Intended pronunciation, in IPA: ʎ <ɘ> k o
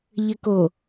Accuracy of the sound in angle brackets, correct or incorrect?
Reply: correct